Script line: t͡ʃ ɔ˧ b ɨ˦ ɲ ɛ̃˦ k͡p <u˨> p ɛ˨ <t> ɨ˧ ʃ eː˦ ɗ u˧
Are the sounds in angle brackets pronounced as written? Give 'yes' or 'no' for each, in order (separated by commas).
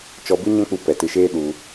no, yes